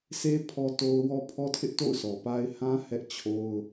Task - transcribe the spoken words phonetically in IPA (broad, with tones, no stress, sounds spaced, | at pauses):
s e˦ pʰ ɔ˦ t o˦ ʊ̯ w ɔ˦ pʰ ɔ˦ tʰ ɪ˦ ʔ t o̰˦˨ ʊ̯ sʰ ɔ˨ p a˦ ɪ̯ h ã˦ h ɛ˦ ʔ t͡ɕʰ o˦ ʊ̯